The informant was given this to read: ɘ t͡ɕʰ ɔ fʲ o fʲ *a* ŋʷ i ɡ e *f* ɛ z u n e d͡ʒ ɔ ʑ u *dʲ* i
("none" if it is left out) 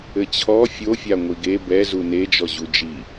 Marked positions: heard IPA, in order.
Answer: a, b, d͡ʒ

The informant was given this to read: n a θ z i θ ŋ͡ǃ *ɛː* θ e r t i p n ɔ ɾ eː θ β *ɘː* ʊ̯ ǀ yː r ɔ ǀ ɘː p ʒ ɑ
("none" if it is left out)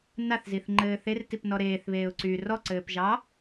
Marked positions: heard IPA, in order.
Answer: ɘː, eː

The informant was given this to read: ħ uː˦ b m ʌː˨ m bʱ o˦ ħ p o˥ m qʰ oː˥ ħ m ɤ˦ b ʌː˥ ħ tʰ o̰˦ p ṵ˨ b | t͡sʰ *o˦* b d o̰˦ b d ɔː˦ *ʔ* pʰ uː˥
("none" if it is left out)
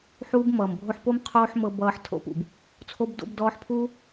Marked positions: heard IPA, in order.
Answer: o˦, ħ

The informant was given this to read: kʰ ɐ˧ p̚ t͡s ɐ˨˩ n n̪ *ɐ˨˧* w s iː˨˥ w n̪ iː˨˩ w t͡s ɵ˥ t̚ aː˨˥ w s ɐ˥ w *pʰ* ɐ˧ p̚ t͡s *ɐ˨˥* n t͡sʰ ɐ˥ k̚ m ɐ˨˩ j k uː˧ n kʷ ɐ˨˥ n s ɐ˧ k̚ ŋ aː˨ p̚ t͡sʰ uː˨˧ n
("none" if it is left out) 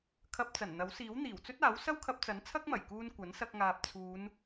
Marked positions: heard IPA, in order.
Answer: ɐ˨˥, kʰ, ɐ˨˥

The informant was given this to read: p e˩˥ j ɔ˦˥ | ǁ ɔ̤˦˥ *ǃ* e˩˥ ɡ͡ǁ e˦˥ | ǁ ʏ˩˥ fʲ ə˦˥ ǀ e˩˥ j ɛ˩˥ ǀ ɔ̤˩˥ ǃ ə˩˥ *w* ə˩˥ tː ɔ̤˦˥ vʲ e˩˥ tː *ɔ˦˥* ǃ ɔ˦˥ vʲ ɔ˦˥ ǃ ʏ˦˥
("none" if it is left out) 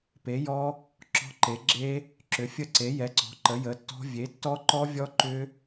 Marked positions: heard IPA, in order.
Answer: ǃ, j, ɔ˦˥

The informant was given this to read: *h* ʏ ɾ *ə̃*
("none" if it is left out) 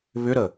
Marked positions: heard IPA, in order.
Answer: β, ə

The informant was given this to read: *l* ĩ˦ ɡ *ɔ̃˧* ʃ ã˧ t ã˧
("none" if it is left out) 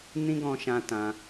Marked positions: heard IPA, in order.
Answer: n, ɔ̃˧

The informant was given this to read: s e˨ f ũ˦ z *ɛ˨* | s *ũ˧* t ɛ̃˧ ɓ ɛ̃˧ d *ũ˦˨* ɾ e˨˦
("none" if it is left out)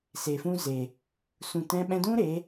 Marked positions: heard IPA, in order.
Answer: e˨, ũ˨, ũ˦

